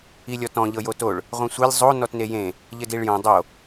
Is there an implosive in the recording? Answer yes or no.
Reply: no